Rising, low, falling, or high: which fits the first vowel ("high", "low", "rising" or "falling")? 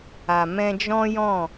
low